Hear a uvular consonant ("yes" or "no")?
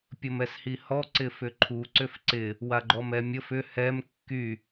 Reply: no